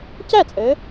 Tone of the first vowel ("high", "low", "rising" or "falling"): falling